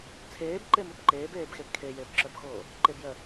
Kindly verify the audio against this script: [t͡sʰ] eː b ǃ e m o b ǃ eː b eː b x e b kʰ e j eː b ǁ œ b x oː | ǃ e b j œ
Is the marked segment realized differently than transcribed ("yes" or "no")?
no